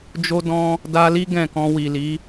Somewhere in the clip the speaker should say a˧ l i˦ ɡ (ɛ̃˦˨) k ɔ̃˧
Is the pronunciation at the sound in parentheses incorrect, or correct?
correct